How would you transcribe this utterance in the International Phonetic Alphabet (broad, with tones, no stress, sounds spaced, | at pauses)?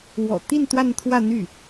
w ɔ̰˨˩ t̪ i˥˧ n t̪ w a˥˧ n t̪ʰ w ä˥˧ n̪ y˥˩